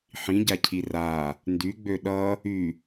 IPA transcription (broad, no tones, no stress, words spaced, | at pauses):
ħĩɟacʰi ra | ndyɡ͡bø ɗʌ | y